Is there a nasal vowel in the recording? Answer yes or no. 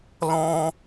yes